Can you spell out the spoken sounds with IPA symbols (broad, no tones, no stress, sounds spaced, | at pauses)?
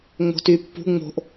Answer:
ŋ͡m o̤ t y pː ṳ ŋ͡m o̤ ʔ